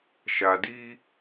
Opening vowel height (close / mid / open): open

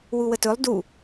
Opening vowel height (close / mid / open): close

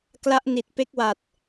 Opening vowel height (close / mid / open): open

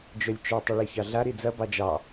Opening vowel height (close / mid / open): mid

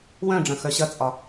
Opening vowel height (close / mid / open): mid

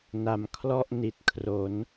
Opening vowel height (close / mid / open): open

